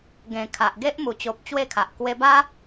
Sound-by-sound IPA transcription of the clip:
ɡ ẽ˨˩ kʰ a˨ ʔ ɡ e˦ ʔ m u˨˩ t͡ɕ o˨ p̚ t͡ɕ w e˥˧ kʰ a˨ ʔ k w e˧ b a˦

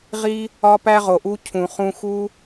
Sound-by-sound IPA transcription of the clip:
ʁ i˦ | ɒ˦ p æ˦ ʁ o˨ ʔ u˦ cʰ ũ˨ χ ũ˧ x u˦

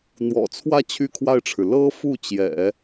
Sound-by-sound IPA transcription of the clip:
n̪ w ɔ̰˨˩ t͡sʰ w ä˥˧ t͡ɕʰ y˥˧ kʰ w a˥˩ ɪ̯ ʈ͡ʂʰ ɻ̩˩ l ɤ˥ f u˥˩ t͡ɕ j ɛ̰˨˩˦

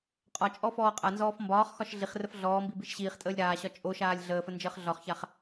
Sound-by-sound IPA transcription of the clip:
qʼ ɒ t͡ʃʼ ɔ f ɔː qʼ a n z ɔː f m b ɒː χ x ɒ ʃ ɮ i χ r ə f ɮ ɔː m b i b i ʃ ɕ iː χ tʼ əː lʲ ɾ aː ɕ ɒ t͡ʃʼ o ʃ aː lʲ ɮ əː f ə n d͡ʒ əː χ ɮ ɒ χ ç a χ

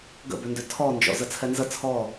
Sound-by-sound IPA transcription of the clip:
ɡ ə̰ b ʏ n d ʏ tʰ ɔ n d͡ʒ ɔ̰ z ə t͡sʰ ɛ n z ə t͡sʰ ɔ

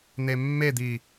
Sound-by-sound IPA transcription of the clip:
n̪ e mː e d̪ i

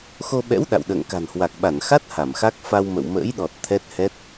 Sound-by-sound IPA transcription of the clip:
x o˧ ɓ ɛ̰˧˥ w ɗ a̰˧˨ w ɗ ə̰ː˧˨ ŋ k a̤˨˩ n h w a˨˩ k̚ ɓ a˧˩ n x a˦˥ t̚ h a˧˩ m x a˦˥ k̚ f a˧ w m ə̰˧˨ w m ə̰ː˧˥ j ɗ ɔ˨˩ t̚ t̪ʰ ɛ˦˥ t̚ h ɛ˦˥ t̚

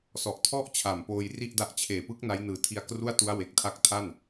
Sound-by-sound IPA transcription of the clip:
s ɔ˨˩ ʔ tʰ ɔ˥˩ ʔ t͡ɕʰ a˨˩ m p oː˧ j r i˥˩ ʔ d a˦˥ ʔ t͡ɕʰ eː˨˩ p ɯ˦˥ k̚ n a˦˥ j n ɯː˨˩ tʰ i˧ a̯ k r u˥˩ a̯ t u˦˥ a̯ w e˨˩ k̚ tʰ a˦˥ k̚ tʰ a˥˩ n

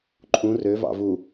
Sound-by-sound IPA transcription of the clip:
ǃʼ ũ r ø v ɑ̰ v u

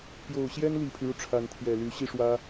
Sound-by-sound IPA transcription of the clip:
p j o˨˩ ʊ̯ ɕ j ɛ˥ n l i˨˩ pʰ y˦ ɻ u˩ ʈ͡ʂʰ a˧˥ n t̪ʰ j ɛ˨˩ l y˧˥ ɕ i˥˩ ʂ w ä˥

